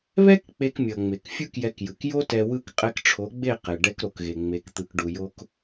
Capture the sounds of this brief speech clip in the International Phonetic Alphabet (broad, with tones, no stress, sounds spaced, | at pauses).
β ɛ˦ k k͡p e˧ k mʲ ʌ˨ ŋ͡m e˨ k fʲ u˦ k j ɛ˧ k j ɯ˨ k j o˦ t ɛ˧ w ɯ˦ k qʼ ɛ˧ k ʈ͡ʂʰ o˨˦ ɡ͡b e˦˨ q e˨ ɖ ɛ˧ k ɾ o˨ k ɣ e˨ ŋ͡m e˧ k t̪ ɯ˧ k ɖ u˧ j o˦ k